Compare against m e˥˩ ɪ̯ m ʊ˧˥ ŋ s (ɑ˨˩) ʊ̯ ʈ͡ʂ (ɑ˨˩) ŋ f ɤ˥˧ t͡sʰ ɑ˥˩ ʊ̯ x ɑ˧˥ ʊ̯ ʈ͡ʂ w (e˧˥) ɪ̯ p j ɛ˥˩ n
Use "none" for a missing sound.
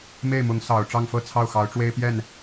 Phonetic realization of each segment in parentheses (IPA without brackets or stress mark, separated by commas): ɑ˨˩, ɑ˥˧, e˥